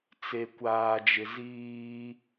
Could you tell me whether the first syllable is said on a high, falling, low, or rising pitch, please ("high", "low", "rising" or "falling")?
low